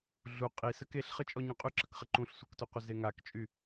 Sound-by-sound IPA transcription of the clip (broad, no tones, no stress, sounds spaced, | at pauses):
ɮ u qʼ i s ə k e ɬ χ ə t͡ʃʼ ɔ ɲ ũ qʼ y ǁ ə k χ ə ǃ ũ ɬ sʷ ə˞ k t u qʷ ə z e ŋ a k t͡ʃʼ y